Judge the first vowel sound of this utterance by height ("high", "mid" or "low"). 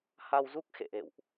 low